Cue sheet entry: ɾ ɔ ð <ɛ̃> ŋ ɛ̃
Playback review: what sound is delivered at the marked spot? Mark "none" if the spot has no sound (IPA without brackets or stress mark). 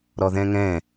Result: ɛ̃